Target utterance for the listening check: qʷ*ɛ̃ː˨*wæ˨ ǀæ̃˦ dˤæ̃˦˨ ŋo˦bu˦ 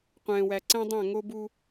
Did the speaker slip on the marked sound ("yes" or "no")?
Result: no